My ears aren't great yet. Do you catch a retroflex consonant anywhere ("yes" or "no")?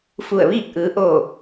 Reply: no